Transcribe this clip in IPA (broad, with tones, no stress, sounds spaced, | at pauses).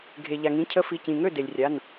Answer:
ɡʱ e˩ ʎ a˩ ŋ ĩ˩˧˩ cʰ ə˨˥ f i˩˧˩ c ĩ˩ ŋ ø˥˩ d e˩ lʲ rʲ a˩˧˩ n